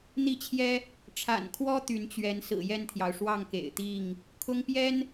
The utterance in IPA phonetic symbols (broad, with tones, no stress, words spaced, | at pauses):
n̪i˦t͡ɕʰjɛ˦ | ʈ͡ʂʰa̰˨˩nkʰwɔ˦ t̪y˨˦nt͡ɕɥɛ˨˦n sɹ̩˨˩jɛ˥˨nt̪ʰjɑ˩ʊ̯ ʂwɑ˥˨ŋkḛ˨˩ɪ̯t̪i˥˨ŋ | kʰʊ˦ŋpjɛ˦n